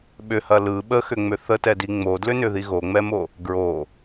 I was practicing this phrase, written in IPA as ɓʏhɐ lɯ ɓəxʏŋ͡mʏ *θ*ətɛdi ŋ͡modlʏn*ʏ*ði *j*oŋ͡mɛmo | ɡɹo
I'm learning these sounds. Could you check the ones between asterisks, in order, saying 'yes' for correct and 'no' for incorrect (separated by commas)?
yes, yes, no